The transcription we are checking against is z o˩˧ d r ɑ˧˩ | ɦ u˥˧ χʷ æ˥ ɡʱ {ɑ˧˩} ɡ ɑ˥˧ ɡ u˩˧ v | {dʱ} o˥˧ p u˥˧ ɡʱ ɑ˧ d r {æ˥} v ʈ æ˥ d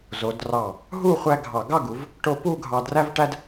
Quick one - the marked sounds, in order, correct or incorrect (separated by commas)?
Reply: correct, incorrect, correct